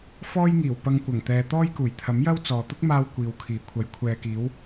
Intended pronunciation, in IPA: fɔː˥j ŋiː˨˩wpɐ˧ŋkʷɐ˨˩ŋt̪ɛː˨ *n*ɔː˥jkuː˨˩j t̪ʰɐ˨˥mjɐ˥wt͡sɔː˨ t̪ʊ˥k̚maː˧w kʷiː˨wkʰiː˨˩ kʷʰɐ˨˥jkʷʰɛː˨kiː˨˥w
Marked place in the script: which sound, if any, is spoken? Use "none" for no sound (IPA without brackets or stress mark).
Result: t̪